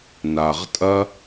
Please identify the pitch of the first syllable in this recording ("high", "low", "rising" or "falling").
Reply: low